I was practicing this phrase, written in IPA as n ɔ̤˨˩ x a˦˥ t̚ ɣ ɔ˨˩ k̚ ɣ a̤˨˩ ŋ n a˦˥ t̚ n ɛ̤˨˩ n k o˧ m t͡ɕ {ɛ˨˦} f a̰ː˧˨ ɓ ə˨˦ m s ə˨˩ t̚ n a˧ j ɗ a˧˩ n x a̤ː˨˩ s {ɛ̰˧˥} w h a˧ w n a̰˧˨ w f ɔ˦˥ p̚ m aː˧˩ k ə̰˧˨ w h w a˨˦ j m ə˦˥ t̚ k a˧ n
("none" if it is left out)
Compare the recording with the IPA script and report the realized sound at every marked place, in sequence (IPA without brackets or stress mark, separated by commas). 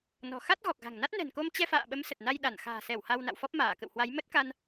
ɛ˧, ɛ˧˩